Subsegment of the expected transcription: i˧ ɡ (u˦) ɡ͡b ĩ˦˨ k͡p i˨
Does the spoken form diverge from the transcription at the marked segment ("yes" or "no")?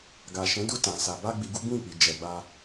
no